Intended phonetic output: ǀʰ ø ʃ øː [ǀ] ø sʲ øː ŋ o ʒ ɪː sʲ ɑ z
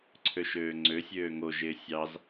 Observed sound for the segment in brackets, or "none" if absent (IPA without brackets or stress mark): ŋ͡ǀ